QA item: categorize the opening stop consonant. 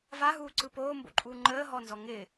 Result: click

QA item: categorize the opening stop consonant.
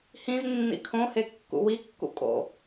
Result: aspirated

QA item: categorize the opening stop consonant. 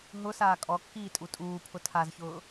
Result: ejective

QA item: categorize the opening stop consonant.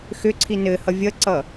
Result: click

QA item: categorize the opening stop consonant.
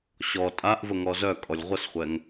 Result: ejective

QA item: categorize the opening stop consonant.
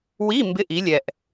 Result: plain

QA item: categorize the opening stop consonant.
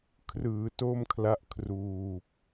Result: aspirated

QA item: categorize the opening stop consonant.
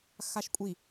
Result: ejective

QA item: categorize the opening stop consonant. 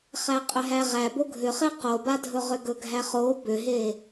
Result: ejective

